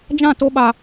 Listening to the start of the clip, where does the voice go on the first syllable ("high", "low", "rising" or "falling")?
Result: falling